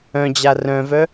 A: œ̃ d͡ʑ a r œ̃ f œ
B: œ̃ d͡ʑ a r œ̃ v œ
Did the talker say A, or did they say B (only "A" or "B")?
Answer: B